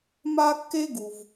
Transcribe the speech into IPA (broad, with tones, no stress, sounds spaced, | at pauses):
m a˥ kː e˥ ɡ u˩ v